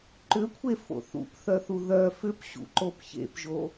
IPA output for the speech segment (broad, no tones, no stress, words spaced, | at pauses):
ǃʏkʷʰe fo̰θṵpθœθu ðœ fʏpɕṵǃop çḛpʒo